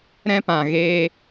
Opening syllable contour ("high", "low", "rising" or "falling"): high